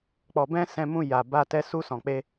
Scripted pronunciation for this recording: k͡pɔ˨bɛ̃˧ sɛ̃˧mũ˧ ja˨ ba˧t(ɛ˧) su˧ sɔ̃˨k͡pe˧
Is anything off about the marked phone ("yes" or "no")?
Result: no